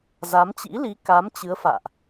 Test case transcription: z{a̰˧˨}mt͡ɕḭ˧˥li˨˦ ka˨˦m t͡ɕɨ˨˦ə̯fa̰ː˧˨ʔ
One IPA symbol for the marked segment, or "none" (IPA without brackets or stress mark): a˨˦